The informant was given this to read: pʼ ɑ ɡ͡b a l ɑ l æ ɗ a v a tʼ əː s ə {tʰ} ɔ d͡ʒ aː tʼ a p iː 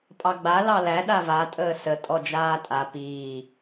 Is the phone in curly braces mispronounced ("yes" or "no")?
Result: yes